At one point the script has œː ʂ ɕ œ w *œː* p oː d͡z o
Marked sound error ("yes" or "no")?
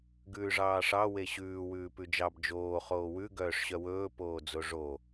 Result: yes